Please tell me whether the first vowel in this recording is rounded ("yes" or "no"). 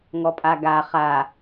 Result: yes